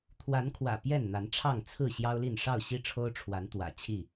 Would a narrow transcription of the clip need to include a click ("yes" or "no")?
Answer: no